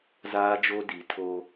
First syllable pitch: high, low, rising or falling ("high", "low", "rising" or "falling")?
high